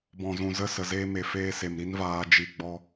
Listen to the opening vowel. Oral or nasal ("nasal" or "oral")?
nasal